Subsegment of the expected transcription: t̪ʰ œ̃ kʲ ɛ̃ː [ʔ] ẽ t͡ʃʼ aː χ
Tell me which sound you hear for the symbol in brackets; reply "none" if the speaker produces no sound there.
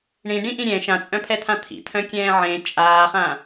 ʕ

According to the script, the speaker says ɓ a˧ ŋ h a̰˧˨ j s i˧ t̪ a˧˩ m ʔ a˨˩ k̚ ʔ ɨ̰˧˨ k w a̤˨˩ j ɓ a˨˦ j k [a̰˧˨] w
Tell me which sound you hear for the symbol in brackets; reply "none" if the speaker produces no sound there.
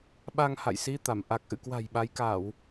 a˧˩˨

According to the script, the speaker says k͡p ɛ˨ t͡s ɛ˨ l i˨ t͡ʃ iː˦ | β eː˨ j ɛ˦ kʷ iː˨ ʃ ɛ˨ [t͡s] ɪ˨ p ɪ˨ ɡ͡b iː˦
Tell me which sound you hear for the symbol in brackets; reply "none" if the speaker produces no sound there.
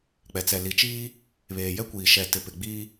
t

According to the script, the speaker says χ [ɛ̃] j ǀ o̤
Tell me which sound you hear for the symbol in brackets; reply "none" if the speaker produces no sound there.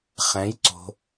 ɛ̃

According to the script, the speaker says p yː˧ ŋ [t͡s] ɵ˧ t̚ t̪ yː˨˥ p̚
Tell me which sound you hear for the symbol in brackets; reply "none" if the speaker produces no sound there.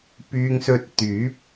s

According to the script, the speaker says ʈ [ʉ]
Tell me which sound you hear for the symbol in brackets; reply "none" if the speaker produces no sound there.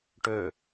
ø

